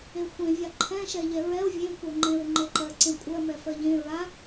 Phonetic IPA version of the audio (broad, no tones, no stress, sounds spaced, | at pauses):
e xʷ ẽ vʲ a ǃʰ ɛ̃ ʃ ɛ ʎ ɛ ɹ ɛ o̯ vʲ ẽ kʷ ɜ ŋ͡ǃ ẽ ɹ ŋ͡ǃ e ǃ ɜ ǀ ẽ kʷʼ ɜ m ɛ f ɜ ʎ ẽ ɹ a